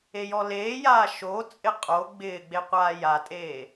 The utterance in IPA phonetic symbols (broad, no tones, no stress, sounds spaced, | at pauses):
e j ɔ l eː j aː ʃ o t͡sʼ ɪ qʼ o ɡ͡b ɪː ɡ͡b e qʷ aː j a tʼ eː